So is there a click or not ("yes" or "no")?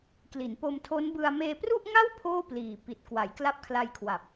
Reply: no